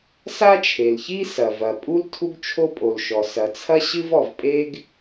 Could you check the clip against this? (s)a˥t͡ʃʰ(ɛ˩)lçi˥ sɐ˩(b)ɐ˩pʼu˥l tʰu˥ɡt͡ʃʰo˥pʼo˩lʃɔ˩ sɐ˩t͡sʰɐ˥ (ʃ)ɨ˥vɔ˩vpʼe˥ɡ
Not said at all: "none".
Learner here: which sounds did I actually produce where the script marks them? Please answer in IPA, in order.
s, e˩, v, ɕ

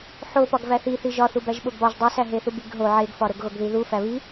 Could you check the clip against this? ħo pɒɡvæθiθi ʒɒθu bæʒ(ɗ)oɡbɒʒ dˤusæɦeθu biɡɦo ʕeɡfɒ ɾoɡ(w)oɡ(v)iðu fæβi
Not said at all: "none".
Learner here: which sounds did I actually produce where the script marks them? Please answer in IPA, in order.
ɓ, ɣ, ð

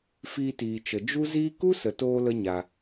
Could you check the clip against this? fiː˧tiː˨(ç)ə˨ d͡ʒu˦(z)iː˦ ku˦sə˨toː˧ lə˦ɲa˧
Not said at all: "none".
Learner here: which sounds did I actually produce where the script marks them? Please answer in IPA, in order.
t͡ʃ, z

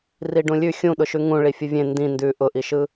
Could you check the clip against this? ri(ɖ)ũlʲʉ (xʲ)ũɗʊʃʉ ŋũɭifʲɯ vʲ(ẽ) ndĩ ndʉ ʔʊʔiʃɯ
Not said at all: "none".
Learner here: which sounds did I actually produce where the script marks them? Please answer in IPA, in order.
ɖ, xʲ, ẽ

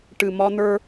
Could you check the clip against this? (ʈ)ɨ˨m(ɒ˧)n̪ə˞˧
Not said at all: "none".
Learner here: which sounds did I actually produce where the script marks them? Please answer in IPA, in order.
ʈ, ɒ˧

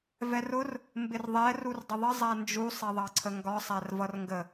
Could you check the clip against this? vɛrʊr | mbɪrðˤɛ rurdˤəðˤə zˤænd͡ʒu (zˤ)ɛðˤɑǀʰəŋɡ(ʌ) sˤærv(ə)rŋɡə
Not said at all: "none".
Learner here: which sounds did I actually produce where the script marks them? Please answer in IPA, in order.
sˤ, ɒ, ʌ

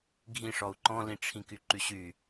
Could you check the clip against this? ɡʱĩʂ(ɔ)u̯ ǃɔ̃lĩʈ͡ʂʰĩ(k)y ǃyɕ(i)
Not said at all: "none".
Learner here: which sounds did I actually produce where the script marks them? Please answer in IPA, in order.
ɔ, k, y

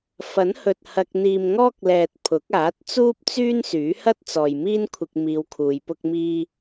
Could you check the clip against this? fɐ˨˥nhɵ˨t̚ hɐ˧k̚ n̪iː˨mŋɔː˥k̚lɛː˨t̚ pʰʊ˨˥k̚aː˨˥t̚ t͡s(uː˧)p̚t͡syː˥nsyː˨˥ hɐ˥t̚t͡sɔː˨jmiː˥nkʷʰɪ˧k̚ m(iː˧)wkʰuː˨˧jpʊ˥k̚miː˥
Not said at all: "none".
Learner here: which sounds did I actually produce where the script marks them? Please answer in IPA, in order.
uː˥, iː˧

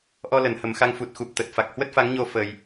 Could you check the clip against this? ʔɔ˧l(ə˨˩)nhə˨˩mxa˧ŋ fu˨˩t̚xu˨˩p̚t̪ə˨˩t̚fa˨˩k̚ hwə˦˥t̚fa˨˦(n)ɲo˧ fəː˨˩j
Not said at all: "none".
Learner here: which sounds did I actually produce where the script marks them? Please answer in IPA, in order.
ə˧˩, ŋ

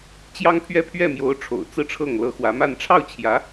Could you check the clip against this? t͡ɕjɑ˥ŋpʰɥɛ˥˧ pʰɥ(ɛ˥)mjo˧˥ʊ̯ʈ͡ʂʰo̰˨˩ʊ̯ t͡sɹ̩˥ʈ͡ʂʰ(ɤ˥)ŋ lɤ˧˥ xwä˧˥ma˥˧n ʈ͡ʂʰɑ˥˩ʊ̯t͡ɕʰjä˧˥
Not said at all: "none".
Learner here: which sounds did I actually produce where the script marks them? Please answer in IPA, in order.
ɛ˥˩, ɤ˥˩

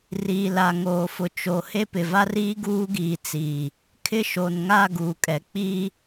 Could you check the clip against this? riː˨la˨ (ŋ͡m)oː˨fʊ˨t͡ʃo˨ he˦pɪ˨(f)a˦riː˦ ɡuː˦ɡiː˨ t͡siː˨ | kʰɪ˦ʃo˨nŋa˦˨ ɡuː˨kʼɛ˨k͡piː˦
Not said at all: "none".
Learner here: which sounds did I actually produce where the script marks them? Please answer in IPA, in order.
ŋ, v

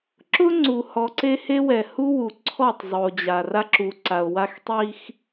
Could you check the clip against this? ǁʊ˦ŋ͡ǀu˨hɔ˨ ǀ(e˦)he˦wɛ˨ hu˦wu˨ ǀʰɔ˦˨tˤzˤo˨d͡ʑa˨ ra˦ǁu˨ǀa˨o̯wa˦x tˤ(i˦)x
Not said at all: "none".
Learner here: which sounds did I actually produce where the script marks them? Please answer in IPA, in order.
e˦, i˦

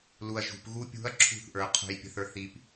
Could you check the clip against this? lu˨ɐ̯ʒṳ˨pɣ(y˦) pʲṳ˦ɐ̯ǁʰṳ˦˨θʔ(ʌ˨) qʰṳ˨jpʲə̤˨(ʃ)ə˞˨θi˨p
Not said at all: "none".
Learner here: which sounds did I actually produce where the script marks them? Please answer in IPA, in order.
u˦, ə˞˨, θ

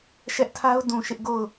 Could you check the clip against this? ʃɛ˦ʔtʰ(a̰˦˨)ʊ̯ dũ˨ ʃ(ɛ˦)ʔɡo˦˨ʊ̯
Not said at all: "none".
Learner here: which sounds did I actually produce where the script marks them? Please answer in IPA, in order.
a˦, ɪ˦

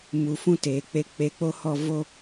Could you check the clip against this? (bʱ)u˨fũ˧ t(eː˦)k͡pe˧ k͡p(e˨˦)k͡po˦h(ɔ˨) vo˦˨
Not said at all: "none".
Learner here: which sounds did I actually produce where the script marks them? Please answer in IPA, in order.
m, eː˨, e˨˦, ɔ˦˨

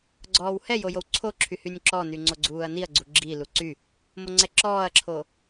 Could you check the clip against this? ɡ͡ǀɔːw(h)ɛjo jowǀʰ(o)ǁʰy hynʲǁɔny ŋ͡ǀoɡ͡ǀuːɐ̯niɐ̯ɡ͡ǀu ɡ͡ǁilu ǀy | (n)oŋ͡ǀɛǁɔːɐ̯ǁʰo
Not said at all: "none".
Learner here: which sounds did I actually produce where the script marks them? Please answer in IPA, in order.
h, o, m

